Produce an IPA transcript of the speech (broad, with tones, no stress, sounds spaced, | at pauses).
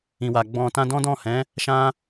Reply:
ĩ˨ w a˨ ɡ͡b ɔ̃˧ t ã˧ d ɔ̃˦ d ɔ̃˦˨ h ɛ̃˨˦ | ʃ ã˦